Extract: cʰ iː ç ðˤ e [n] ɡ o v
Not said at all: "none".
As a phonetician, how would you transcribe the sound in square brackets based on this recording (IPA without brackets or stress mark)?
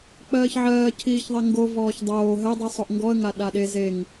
ŋ